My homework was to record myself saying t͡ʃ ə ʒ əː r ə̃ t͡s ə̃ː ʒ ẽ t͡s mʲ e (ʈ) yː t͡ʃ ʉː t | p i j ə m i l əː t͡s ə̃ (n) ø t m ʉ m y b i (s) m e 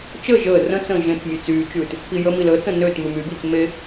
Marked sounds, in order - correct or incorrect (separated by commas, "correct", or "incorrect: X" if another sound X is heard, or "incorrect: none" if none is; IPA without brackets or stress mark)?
incorrect: t͡s, correct, incorrect: t͡s